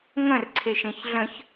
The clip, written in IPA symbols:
ŋ ə̃ r ǀʰ e ʃ ẽ ç ɮ ə̃ ç

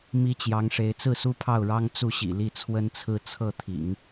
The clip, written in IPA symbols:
m i˥ t͡ɕ j ɑ˧˥ ŋ ʂ e˧˥ ɪ̯ t͡s ɹ̩˥˩ s u˥ pʰ ɑ˥˩ ʊ̯ ɻ ɑ˥ ŋ t͡s u˥˩ ɕ ḭ˨˩ l i˥˩ t͡sʰ w ə˥ n t͡sʰ ɹ̩˥˧ t͡sʰ ɤ˥˩ t̪ʰ ḭ˨˩˦ ŋ

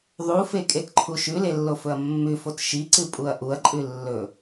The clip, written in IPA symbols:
ðˤ u f e kʼ e t ǃʰ u ʃ ʉ l e lː o f ɵ ɐ̯ mː ʉ f o t ʃ i ǀ ɨ pʼ u ɐ̯ ʔ u ɐ̯ ǃʼ ʉ lː ɵ

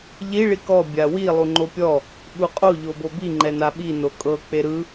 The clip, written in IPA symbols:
ʎ i ɭ i k ɔ bʲ a w i lˠ u ŋ͡ǃ o pʲ ɔ | ɓ u qʼ o ʎ o b o b i ŋ͡ǃ ɛ n a ɓ i n o kʼ ɤ k͡p e ɾ ɯ

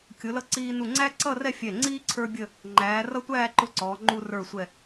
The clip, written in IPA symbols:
kʲ ʊ˩˧ l ʌ˧ ǀ iː˧ n u˧˩ ŋ͡ǀ æ˥ ǀ ʌ˥˧ r ɛ˥˧ fʲ ɛ˧˩ ŋ͡ǀ iː˥ ǀʰ ə˞˥ bʲ ə˥˧ | ŋ͡ǃ æː˩˧ r ʌ˥ tʷ æː˥˧ ǃ ʊ˥ ǀ ɔː˩˧ ŋ͡ǃ u˧ r ə˞˧˩ sʷ ɛ˧˩

